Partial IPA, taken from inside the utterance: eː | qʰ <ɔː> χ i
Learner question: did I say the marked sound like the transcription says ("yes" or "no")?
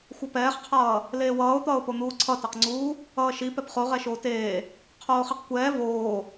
no